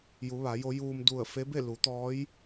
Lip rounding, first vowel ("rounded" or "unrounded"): rounded